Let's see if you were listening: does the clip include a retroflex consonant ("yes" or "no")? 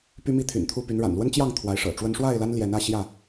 yes